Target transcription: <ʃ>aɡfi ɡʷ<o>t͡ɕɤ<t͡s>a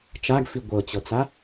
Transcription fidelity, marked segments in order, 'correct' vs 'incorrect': incorrect: t͡ʃ, incorrect: ɤ, correct

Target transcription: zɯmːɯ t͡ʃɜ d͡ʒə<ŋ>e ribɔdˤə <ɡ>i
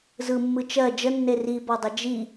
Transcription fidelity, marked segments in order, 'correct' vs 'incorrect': incorrect: nː, incorrect: d͡ʒ

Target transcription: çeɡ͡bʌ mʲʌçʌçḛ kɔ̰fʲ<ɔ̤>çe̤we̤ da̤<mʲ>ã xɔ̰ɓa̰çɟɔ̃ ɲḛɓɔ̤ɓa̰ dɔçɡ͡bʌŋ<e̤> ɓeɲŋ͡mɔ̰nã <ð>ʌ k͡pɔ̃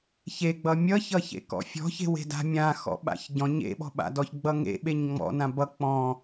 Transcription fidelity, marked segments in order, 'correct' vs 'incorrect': correct, correct, incorrect: ḛ, incorrect: b

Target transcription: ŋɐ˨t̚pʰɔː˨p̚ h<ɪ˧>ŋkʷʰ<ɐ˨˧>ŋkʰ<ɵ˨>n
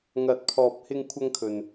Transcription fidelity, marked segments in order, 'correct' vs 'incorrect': correct, incorrect: ɐ˧, correct

